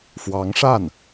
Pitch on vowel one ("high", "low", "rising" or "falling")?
rising